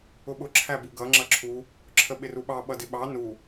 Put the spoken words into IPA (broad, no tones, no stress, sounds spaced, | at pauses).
ʊ ɓ ʊ ǁʰ æ b u ɡ ʌ ŋ͡ǁ ʌ ǁʰ u | ǁʰ ə ɓ ɪ r u ɓ ɑ ɓ ʌ d ɪ ɓ ɑ n u